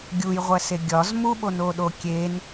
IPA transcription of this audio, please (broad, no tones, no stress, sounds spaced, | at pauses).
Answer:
ɡʲ u j ʁʷ æ s e ɡʲ ɒ z m u ɓ o n o ɗ o kʲ e n